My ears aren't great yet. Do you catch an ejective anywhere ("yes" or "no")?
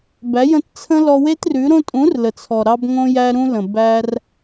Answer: yes